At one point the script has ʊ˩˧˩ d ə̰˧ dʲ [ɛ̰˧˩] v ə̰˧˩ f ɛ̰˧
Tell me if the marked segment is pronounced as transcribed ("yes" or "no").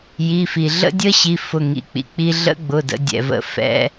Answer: no